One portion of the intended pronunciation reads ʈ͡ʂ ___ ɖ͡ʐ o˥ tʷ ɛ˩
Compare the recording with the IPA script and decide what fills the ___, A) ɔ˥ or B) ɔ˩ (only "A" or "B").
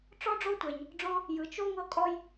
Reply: A